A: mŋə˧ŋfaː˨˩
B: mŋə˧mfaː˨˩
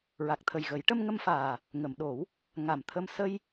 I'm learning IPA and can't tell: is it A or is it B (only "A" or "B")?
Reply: B